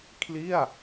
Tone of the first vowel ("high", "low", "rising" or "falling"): falling